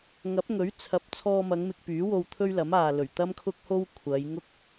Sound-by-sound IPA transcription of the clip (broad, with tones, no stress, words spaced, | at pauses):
ŋɐ˨˥p̚ŋɵ˨˥ɥ t͡sʰɐ˨˥p̚ t͡sʰɔː˧mɐ˨˧ŋ mɪ˧k̚pyː˨˥wo˧w t̪ʰɵ˥ɥlɐ˨˥maː˨lɵ˨˩ɥ t̪ɐ˥mkʰʊ˥k̚ho˥w kʷʰɐ˨˧jŋʊ˥k̚